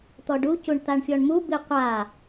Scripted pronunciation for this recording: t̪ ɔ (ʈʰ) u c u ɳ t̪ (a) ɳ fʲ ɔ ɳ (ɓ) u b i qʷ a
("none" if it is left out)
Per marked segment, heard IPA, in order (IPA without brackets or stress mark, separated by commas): ɖ, a, m